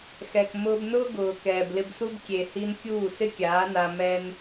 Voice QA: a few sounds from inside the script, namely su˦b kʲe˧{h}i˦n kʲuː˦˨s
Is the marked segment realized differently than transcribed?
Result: no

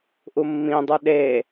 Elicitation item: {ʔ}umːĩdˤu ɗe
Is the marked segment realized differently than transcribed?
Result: no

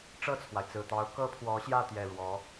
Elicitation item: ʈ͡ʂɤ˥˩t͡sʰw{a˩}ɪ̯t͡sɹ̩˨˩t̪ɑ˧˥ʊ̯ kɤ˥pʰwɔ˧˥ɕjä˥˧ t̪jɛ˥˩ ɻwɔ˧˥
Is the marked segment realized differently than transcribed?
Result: no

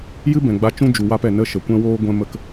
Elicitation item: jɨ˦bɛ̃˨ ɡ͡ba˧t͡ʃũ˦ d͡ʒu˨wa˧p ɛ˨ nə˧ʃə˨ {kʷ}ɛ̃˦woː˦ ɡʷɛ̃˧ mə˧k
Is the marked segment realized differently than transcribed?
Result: no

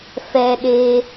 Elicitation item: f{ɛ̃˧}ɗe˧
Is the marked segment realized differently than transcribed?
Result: yes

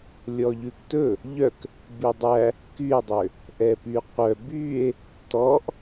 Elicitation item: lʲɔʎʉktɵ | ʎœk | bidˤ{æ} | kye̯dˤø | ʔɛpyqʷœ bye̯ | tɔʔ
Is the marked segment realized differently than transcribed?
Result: no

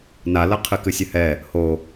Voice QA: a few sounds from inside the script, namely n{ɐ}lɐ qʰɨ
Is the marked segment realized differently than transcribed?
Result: yes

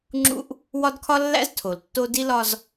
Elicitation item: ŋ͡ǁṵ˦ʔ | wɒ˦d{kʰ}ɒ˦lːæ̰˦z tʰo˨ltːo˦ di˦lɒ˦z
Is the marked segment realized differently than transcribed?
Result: no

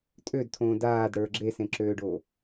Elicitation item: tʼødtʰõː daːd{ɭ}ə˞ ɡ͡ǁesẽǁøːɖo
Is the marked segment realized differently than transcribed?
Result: yes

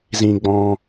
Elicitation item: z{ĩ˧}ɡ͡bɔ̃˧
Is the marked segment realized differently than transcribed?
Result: no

